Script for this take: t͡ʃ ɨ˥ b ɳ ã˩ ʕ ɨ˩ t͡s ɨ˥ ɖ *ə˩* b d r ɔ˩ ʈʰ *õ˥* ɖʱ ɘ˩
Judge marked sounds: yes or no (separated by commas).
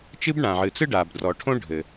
no, yes